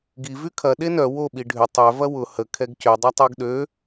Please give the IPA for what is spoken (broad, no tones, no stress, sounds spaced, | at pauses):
ɡ i v y kʰ ɐ ɗ e n œ w o ɓ i ɖʱ ʏ tˤ œ v ɐ w ʊ h ə kʰ ɛ ɡ c ʏ dˤ ɐ tˤ u ɡ ɗ ø